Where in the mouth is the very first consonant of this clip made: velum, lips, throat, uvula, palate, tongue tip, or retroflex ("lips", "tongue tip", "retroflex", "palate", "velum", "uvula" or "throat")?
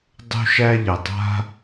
tongue tip